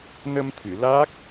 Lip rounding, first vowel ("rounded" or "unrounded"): unrounded